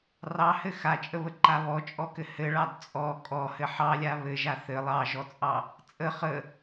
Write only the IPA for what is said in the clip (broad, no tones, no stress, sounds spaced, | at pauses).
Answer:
r ɑ h ɘ x a t͡ʃʼ ə β ə ǃ a β ɔ t͡ʃʼ ɔ k ɘ h ɘ ɭ ɑ d t͡sʼ ɔ kʼ ɔ h ɘ ħ ɑ lʲ a β ɘ ʒ a θ ɘ lˠ ɑ ʒ ɔ t͡sʼ ɑ | t͡sʼ ə χ ə